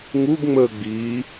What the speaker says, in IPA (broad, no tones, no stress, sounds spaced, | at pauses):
ŋ u ɡ ŋ͡m əː ɡ͡b iː